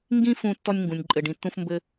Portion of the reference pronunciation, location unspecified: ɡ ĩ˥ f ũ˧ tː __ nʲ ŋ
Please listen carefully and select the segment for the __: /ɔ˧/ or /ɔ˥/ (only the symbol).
ɔ˧